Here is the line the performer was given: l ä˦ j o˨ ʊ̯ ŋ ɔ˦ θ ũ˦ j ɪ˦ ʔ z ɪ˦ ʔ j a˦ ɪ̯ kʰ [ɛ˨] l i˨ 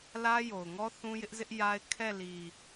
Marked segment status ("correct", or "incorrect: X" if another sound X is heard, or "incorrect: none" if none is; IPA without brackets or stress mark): incorrect: ɛ˦˨